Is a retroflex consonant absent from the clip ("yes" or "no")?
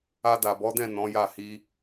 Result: yes